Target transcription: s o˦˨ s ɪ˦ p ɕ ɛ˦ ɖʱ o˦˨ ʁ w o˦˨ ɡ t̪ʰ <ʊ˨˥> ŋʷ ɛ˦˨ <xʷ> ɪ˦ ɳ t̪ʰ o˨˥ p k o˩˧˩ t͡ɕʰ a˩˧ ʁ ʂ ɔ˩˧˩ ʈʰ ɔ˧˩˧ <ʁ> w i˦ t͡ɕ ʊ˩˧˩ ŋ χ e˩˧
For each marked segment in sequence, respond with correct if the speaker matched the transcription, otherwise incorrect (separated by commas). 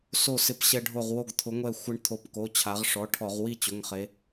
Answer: correct, correct, correct